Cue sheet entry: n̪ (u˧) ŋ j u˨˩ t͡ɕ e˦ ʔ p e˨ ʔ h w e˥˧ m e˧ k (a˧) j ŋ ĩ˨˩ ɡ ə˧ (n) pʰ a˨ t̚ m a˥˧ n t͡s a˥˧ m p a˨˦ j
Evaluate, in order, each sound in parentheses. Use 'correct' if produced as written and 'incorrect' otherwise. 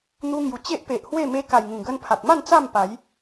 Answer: correct, incorrect: a˨˩, correct

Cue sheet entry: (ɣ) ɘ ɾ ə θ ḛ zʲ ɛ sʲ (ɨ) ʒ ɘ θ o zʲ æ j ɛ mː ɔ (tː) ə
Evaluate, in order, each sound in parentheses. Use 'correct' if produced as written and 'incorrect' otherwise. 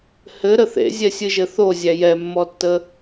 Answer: incorrect: h, correct, correct

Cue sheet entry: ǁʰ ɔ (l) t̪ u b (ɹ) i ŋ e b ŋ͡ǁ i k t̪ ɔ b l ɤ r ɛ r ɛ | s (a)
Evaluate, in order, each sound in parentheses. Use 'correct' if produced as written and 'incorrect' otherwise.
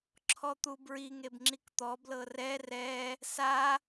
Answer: incorrect: none, correct, correct

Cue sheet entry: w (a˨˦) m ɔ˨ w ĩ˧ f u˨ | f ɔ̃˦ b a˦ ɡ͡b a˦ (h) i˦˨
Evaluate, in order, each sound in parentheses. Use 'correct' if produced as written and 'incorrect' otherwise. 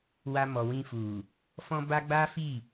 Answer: incorrect: a˧, incorrect: f

